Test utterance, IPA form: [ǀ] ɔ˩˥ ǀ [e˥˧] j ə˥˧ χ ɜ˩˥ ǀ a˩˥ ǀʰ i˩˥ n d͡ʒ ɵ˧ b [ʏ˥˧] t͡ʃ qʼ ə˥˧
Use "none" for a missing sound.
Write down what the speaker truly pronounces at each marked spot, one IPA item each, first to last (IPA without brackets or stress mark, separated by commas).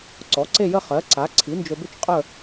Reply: ǀ, e˥˧, ʏ˥˧